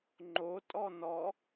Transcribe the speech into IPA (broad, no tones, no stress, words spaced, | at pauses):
ŋ͡ǃotʼɔ nɔ